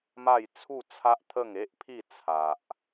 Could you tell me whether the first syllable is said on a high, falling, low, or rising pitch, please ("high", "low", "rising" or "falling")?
falling